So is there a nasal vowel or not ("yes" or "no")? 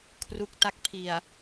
no